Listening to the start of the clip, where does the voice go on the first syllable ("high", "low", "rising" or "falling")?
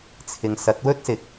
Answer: low